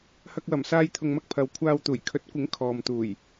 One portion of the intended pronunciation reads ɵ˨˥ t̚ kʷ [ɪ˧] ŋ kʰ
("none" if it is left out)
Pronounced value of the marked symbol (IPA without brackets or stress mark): ɪ˨˥